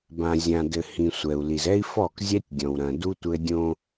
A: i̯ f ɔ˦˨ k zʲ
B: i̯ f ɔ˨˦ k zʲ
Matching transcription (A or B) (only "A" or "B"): A